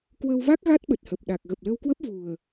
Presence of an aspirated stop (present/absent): absent